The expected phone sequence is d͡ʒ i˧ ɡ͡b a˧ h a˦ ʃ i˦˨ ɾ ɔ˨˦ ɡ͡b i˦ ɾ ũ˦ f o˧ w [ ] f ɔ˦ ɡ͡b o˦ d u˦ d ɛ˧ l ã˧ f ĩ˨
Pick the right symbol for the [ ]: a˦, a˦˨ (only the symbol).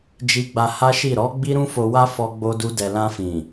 a˦